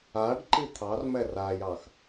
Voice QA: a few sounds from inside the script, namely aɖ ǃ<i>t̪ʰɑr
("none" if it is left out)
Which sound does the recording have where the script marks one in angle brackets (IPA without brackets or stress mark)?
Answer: i